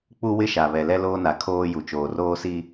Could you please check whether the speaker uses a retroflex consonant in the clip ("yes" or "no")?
no